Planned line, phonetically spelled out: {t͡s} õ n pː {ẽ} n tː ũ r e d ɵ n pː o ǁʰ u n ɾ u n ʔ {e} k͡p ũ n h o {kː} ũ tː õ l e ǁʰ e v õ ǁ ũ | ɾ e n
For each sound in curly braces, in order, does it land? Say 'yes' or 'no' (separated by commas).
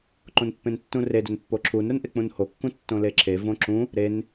no, yes, yes, yes